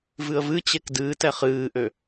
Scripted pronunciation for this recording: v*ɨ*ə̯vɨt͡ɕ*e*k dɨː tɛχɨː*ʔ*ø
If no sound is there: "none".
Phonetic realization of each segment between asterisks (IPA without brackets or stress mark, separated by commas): ɨ, e, ʔ